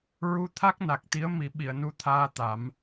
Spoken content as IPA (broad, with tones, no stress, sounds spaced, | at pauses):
ɹ u˧ t̪ʰ a˦˥ k̚ n a˨˩ k̚ t̪ i˧˥ ə̯ m i˨˩˦ ɓ i˨˩˨ ə̯ n u˧ t̪ʰ aː˧ t̪ a˨˩˦ m